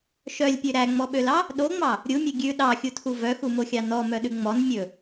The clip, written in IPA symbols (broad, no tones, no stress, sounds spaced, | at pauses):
ʃ œ lʲ pʲ ø ɾ æ ŋ͡m ɔ ɓ ø l ɑ | ɗ o ŋ͡m ɑ | ɾʲ u mʲ ø ɡʲ ʉ ɗ ɑ xʲ u tʰ u v œ x u m o xʲ ɑ n ɔ m œ ɗ ʉ ŋ͡m ɔ n mʲ ɵ